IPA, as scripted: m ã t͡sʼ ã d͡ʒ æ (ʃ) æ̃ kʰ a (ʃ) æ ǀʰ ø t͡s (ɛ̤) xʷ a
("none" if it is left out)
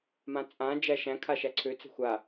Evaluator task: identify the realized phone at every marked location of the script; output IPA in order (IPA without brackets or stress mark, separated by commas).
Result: ʃ, ʃ, ɛ̤